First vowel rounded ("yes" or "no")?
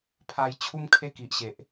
no